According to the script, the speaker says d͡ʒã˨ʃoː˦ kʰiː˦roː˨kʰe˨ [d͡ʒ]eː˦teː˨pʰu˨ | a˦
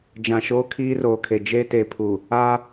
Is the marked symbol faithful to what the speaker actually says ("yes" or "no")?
yes